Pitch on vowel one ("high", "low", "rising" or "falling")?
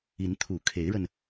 rising